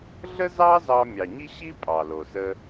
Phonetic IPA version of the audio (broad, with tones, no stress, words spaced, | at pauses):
ɮə˥zɑ˥zɑ˧ mʲɑ˩ɲi˥ɕi˥ pʼɑ˩lo˩sə˧